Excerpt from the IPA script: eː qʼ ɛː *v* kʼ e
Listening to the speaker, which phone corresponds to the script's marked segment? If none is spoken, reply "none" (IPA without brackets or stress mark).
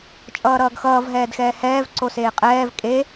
v